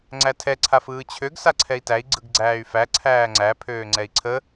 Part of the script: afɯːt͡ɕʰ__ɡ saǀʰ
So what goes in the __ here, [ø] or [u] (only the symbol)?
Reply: ø